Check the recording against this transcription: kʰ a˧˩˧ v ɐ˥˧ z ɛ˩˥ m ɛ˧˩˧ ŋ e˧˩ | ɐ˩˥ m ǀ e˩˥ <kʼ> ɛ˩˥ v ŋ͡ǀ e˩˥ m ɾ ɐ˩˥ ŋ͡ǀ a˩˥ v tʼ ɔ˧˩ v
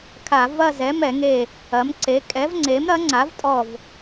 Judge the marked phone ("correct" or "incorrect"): correct